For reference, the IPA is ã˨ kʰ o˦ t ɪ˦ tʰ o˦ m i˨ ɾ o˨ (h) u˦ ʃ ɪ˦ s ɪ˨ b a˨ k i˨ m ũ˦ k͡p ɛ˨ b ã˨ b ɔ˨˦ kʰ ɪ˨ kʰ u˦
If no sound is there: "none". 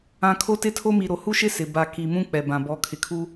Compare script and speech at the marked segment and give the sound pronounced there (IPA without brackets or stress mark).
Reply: h